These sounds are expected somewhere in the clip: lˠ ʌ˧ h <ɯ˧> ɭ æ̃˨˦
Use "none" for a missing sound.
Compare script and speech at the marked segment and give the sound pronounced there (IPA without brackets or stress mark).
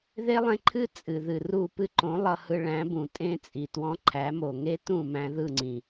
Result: ɯ˧